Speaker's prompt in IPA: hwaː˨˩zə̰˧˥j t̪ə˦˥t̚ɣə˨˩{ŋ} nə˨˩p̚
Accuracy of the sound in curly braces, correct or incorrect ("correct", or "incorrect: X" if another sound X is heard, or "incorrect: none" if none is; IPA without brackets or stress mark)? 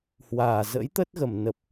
incorrect: m